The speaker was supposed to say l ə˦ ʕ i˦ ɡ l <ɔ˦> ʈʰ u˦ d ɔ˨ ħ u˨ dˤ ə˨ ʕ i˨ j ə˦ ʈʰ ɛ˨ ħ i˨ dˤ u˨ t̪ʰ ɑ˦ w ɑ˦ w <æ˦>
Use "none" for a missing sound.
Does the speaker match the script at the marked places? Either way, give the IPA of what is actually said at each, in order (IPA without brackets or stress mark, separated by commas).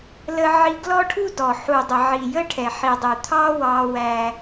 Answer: ɔ˦, æ˦